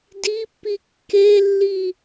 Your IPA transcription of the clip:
dipːi kːelːi

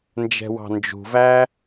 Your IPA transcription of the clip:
nd͡ʒɛ̤wɑ̤nd͡ʒṳvæ

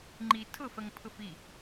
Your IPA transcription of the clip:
ŋ͡ǃi tʰʊfɜŋpʰʊf i

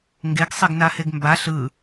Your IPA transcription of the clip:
ŋɡeɡsˤeɡnaheɡ mbaɬ ɯ

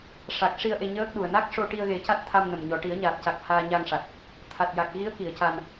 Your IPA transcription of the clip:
ʂa˨˩k̚ ʂi˧ə̯ ʔe˧ɲəː˦˥k̚ɗu˨˩ə̯ na˦˥k̚ ʂo˧ʈi˧ə̯ɣe˨˩˦ ca˦˥t̚t̪ʰa˧mnə˨˩mɲɔ˨˩ ʈi˨˩˦ə̯ɲaː˨˩t̚ca˨˩k̚ haː˧ɲa˧ŋʂa˨˩t̚ | t̪ʰa˨˩t̚ja˨˩k̚ɣi˧˥ə̯ki˨˩˨ə̯ ca˧n

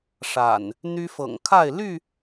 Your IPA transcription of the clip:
ʂa̰˨˩n | n̪y˦fɤ̰˨˩ŋ kʰa˥˨ɪ̯ ly˥˨

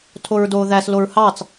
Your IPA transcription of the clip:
tʰoɹdoːðæs loɹhɑt͡s

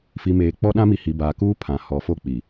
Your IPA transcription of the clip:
fi˨ meː˨ k͡pɔ˦ɗã˦mi˨hi˨ baː˨kuː˦ pʰã˨ hɔ˨˦fo˦˨k͡pi˨

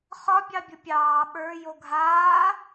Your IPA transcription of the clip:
χɒ bʲɑbʲʊpʲɑː ɓə˞ joɡʱaː

